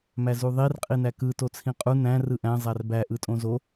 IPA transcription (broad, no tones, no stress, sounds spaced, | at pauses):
m æ z u ðˤ i r qʼ i n æ k ɯ t o t͡sʰ ĩ qʼ u n æ̃ r ɯ ʔ æ̃ zˤ æ r b æ ʔ ɯ tʼ õ z o